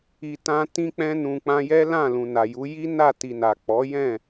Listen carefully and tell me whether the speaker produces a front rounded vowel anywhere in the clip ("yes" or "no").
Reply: no